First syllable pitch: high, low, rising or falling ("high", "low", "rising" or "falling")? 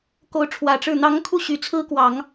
rising